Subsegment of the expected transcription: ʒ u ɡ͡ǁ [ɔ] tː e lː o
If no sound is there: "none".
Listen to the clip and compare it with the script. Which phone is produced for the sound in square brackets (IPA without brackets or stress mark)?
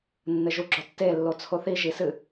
ɔ